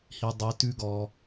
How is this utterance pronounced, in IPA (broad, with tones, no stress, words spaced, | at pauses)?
hi˧dˤi˧tʉ˦ɡɔ˧